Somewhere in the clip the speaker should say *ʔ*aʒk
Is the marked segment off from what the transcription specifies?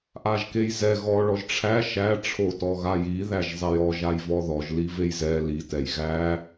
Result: no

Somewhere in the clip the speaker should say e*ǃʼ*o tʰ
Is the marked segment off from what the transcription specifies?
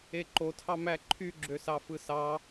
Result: yes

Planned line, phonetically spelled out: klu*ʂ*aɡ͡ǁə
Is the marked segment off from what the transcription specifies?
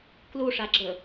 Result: no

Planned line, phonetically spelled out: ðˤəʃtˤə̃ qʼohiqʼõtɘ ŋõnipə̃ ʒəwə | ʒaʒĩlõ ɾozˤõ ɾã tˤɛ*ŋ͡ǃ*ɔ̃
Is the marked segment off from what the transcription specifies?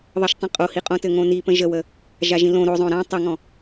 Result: yes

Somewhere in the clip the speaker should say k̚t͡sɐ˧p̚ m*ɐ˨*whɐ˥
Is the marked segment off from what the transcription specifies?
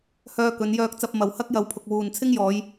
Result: no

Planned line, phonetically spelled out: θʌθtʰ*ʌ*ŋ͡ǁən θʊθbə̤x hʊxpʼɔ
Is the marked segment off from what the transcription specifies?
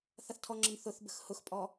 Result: yes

